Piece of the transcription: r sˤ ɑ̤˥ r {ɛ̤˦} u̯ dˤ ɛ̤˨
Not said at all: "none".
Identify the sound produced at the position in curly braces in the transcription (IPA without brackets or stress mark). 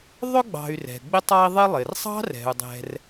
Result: ɛ̤˩